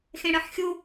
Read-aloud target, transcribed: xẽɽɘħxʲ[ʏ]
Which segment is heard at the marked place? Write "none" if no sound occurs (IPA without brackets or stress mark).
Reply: u